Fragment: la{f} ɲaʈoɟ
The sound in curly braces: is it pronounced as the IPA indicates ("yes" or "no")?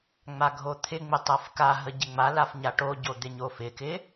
yes